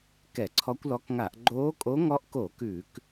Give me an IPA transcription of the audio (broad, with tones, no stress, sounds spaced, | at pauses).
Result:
k ɛ˧˩˧ ǀʰ ɔ˧˥ kʷ l ɔ˧˥ k ŋ a˧˩˧ ʔ ɡ͡ǃ oː˧˥ kʼ o˧˥ ŋ ɔ˧˥ ʔ k o˧˩˧ k ʉ˧˩˧ k